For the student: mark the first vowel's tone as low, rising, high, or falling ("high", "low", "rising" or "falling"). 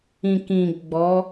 low